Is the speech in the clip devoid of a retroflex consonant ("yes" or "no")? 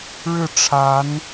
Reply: no